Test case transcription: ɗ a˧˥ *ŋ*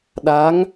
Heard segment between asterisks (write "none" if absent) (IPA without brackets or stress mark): ŋ